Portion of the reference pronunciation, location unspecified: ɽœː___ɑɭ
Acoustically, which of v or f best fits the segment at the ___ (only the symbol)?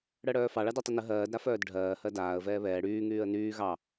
f